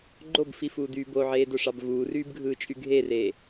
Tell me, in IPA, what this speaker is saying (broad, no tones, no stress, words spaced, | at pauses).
ɡ͡ǃobfifuːdyː boʕeːdoʂɑb vuːryːbɡʱɯːt͡ʃʼy ɡʱereː